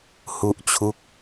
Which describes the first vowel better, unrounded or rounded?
rounded